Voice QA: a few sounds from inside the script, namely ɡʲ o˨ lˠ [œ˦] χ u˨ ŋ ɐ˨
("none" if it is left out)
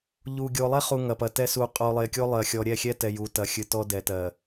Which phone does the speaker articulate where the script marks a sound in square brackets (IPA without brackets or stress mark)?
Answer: ɛ˦